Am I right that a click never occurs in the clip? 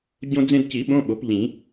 yes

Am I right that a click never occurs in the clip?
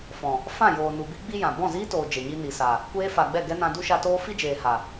yes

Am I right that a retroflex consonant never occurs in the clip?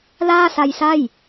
yes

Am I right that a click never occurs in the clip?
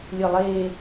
yes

